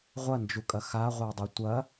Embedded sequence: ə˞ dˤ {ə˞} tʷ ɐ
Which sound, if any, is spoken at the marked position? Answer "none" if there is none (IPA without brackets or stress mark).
ʌ